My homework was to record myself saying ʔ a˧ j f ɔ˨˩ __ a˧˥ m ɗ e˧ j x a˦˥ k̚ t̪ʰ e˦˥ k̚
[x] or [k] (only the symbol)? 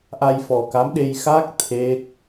k